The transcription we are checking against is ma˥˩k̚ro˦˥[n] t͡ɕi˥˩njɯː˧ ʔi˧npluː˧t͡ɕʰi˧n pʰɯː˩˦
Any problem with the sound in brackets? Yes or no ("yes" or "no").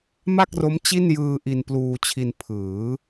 yes